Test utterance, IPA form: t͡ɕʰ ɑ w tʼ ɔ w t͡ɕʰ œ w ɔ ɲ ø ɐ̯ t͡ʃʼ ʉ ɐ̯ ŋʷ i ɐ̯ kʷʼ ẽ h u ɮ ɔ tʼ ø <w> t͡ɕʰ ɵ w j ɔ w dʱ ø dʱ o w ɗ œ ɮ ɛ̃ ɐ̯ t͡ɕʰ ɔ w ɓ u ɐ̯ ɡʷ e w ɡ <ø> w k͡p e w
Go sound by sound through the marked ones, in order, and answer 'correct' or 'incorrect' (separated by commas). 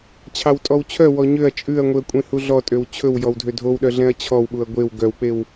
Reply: correct, incorrect